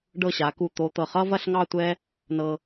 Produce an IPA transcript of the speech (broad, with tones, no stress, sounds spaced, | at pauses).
ɖ ɤ˧˩ ɕ a˩˧ k u˧˩ t̪ o˧ t̪ ɤ˧˩ χ ʌ˥ v ɐ˥˧ ɬ ŋ ɑ˥˧ tʷ ɛ˥ | n ɤ˧